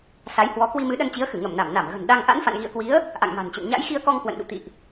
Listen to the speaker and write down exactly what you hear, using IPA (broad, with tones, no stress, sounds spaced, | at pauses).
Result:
s a˨˦ j h w ɔ˨˦ k w i˧ m ɨ˨˦ ɗ ə˧ n t͡ɕ i˨˦ ə̯ x ɨ˧˩ ŋ ə˧˩ m n a˧˩ m n a˧˩ m ɣ ə̤˨˩ n ɗ a˧ ŋ ʔ a̰˧˥ n f a̰˧˨ n ɣ ḭ˧˨ ə̯ k w i˨˦ ə̯ | ʔ a̰˧˨ ŋ m a̤˨˩ n t͡ɕ ə̰˧˨ n ɲ a̰˧˥ j x i˧ ə̯ k ɔ˧ ŋ k w ə̰˧˨ n ɗ ṵ˧˨ t̪ ḭ˧˨ ʔ